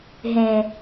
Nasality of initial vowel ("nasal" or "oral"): nasal